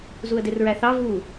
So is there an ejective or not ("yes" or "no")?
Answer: no